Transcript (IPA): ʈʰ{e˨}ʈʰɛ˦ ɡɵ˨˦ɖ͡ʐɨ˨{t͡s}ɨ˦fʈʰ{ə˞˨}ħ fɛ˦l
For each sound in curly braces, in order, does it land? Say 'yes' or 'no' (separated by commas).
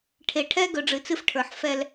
yes, yes, yes